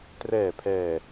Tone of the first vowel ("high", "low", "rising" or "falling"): low